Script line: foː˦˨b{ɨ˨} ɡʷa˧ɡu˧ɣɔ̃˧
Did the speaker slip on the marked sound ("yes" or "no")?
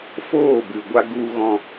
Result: no